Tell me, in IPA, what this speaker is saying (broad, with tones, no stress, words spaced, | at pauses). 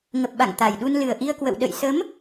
ŋə˨˩p̚ɓa̰˧˨ŋ t̪a˨˩jɗu˧n lɨ˨˩ə̯ʔi˧ə̯kwə̰˧˨w ɗə̰˧˨j sə˨˦m